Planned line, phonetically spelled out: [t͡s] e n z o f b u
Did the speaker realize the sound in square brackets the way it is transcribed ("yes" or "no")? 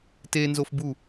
no